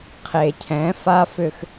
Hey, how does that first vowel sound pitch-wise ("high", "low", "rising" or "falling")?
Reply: low